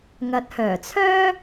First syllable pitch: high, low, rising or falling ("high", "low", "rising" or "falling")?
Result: low